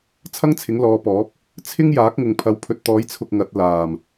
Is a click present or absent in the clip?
absent